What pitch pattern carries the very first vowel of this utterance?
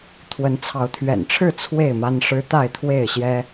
rising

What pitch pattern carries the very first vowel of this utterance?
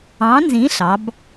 rising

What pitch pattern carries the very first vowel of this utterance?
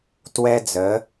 high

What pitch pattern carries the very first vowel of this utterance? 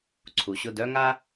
low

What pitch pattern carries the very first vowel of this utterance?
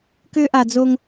high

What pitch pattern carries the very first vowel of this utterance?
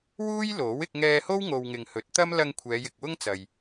high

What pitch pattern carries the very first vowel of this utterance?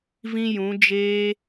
high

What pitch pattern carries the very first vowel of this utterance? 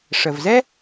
low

